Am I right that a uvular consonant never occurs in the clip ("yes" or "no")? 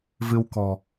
yes